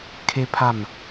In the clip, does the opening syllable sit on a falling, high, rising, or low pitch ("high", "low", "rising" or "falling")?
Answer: high